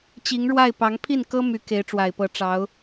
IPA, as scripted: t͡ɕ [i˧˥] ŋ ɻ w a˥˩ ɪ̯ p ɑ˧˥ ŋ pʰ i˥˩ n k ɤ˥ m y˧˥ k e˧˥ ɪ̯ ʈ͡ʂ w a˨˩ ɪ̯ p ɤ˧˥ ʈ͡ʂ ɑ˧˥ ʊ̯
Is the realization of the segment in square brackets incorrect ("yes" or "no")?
no